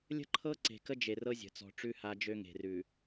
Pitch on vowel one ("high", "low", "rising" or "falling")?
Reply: high